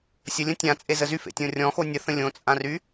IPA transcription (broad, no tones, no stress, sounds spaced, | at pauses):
sʲ ə lʲ ə̃ tʲ ã t͡sʼ e z ə z y f ḛ tʲ õ rʲ ɔ̃ x o nʲ ə θ ə̃ lʲ õ t͡sʼ ã r y